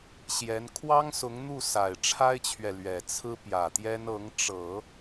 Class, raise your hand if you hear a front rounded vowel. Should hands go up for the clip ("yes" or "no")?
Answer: no